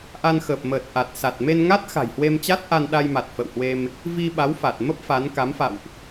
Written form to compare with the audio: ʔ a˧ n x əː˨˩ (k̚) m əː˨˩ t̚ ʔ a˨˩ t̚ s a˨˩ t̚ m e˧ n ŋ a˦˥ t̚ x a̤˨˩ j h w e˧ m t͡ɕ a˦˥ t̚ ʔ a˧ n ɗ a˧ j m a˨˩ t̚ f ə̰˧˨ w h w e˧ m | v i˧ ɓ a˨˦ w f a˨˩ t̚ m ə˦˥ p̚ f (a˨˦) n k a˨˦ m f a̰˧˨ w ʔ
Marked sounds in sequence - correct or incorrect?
incorrect, correct

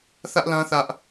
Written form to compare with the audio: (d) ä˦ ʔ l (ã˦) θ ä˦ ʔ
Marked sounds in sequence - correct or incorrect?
incorrect, correct

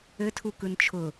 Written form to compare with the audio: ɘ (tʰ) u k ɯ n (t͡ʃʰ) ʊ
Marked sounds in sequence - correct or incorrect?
correct, correct

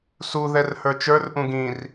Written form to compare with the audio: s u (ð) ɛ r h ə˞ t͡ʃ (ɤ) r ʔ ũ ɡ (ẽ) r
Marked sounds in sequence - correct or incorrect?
correct, incorrect, incorrect

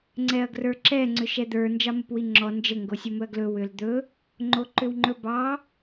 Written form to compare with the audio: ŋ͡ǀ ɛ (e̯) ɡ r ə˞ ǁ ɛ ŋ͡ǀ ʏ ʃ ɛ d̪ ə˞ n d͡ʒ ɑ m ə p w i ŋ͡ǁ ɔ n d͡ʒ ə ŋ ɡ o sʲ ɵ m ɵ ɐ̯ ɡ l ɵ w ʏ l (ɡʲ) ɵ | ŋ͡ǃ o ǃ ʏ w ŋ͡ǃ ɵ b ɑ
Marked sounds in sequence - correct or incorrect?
incorrect, incorrect

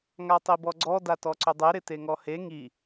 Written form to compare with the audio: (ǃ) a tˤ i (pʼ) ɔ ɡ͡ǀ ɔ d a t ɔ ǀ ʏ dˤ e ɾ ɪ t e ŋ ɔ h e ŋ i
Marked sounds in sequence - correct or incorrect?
incorrect, incorrect

